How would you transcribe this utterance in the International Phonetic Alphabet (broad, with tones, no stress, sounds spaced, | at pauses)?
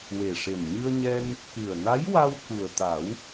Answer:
w e˨˩ ʂ e˨˩ n ɲ ɨ˧ ə̯ ɲ ɛ˧ n | k ɨ˨˩ ə̯ n a˧˥ j w a˧ w k u˨˩ ə̯ t̪ a˨˩˦ w